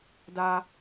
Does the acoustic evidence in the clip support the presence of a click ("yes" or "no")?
no